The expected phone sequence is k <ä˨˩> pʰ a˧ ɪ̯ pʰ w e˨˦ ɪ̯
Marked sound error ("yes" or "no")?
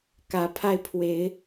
yes